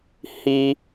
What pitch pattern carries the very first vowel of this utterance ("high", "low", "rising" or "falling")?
high